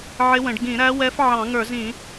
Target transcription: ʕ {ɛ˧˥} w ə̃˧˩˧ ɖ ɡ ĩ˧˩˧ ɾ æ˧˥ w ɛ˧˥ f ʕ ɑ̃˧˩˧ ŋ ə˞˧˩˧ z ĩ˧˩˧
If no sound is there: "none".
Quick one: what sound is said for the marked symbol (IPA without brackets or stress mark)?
ɪ˧˥